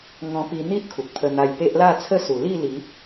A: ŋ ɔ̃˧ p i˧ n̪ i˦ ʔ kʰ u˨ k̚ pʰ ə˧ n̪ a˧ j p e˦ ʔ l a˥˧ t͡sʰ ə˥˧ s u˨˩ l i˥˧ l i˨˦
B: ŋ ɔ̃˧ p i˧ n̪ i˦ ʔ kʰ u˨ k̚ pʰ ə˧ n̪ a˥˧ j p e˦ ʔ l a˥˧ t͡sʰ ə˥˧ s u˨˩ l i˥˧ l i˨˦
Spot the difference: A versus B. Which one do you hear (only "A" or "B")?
A